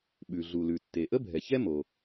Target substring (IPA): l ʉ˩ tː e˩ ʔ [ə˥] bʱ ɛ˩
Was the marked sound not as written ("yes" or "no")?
no